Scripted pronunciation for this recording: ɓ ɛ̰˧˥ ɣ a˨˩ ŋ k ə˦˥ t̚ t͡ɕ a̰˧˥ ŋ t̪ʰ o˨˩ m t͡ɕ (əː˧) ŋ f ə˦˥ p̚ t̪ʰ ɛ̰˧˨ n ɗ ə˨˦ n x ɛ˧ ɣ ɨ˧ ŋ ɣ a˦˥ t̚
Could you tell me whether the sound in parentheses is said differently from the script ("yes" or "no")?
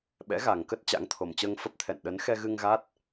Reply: no